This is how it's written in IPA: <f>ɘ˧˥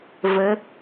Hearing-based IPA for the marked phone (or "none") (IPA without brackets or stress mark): v